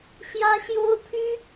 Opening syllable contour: high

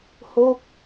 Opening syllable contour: falling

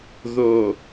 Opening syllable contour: low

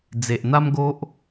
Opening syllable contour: low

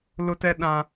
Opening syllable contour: high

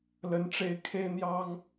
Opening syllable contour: rising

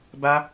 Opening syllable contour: high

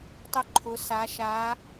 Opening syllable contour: high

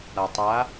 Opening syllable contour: low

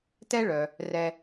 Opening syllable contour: high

